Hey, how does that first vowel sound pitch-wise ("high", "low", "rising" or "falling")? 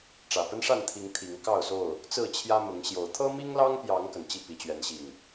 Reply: low